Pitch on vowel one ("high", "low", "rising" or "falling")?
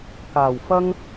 low